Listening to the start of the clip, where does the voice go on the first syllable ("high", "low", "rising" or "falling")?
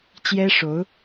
high